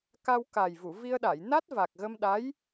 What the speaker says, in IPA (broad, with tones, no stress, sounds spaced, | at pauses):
k a˧ w k a˨˩ j v u˨˩˨ v i˧ ə̯ ɗ a˨˩˨ j n a˦˥ t̚ v a˨˩ k̚ ɣ ə˧ m ɗ a˧˥ j